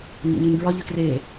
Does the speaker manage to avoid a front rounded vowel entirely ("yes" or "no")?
no